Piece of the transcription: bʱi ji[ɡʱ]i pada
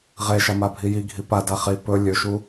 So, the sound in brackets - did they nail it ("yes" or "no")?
yes